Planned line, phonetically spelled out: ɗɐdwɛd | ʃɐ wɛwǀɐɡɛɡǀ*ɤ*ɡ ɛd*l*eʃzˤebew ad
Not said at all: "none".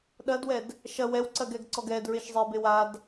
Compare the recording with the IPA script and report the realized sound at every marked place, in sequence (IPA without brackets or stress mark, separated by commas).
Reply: ɔ, ɹ